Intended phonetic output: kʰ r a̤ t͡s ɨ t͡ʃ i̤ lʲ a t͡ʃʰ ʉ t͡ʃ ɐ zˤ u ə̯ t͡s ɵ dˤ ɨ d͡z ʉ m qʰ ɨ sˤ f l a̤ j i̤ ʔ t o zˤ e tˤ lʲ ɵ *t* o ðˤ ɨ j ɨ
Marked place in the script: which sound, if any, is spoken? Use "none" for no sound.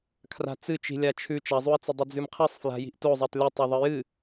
tˤ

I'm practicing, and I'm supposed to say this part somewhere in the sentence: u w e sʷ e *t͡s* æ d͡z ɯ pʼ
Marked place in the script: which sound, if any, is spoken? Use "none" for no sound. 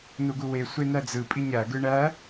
n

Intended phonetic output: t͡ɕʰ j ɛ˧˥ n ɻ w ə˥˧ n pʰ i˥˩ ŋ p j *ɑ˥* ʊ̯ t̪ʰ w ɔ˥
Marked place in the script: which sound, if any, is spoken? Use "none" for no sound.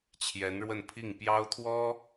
ɑ˥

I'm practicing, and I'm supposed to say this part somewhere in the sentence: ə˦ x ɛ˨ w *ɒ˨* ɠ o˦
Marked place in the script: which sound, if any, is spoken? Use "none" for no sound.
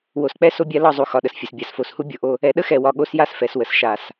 ɒ˨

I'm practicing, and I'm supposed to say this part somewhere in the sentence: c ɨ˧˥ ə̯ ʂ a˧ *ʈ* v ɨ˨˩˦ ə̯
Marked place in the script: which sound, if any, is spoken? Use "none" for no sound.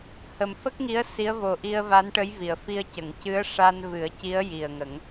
n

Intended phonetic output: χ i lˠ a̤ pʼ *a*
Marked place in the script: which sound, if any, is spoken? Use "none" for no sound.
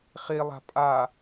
a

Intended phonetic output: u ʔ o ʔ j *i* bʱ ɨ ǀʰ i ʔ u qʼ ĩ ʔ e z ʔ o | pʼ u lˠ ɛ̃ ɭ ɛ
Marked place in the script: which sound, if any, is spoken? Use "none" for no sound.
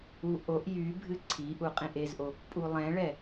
y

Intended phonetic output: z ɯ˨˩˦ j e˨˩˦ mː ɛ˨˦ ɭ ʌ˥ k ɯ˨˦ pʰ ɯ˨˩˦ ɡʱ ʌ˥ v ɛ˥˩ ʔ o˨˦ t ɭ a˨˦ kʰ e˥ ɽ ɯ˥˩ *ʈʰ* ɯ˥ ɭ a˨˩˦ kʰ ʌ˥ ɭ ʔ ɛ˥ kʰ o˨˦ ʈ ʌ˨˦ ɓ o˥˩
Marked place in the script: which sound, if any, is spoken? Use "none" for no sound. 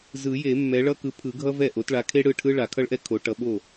ʈʰ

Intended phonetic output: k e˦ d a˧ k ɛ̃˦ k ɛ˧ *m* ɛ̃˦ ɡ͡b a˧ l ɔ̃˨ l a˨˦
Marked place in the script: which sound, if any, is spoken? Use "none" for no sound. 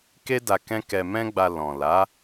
m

